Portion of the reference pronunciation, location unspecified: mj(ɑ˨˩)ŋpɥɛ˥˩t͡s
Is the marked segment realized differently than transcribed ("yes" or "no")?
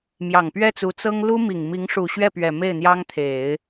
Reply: no